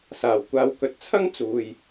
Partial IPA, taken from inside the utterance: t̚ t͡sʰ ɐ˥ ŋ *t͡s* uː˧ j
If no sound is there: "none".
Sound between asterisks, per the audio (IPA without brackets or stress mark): t͡s